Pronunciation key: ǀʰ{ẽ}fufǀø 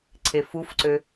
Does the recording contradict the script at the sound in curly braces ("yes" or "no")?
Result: yes